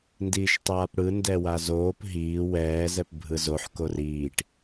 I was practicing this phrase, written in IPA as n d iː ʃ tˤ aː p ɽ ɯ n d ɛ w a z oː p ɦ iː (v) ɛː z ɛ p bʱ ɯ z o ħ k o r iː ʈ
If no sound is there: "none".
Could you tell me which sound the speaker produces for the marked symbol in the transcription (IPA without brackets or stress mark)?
w